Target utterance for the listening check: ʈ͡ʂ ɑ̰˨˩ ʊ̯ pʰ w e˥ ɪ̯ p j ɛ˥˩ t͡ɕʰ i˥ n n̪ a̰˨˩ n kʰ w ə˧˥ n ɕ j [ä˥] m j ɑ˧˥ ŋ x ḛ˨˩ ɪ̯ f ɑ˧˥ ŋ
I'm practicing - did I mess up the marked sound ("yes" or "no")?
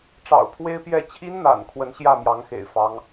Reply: yes